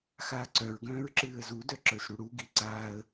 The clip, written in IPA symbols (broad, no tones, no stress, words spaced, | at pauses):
xaːǀœɹɡœ̃ːɹ ǁɨːə̯zudœ ǁə˞sɽuɽuɡi ǀaːə̯